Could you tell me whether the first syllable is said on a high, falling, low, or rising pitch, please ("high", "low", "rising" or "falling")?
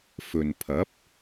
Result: low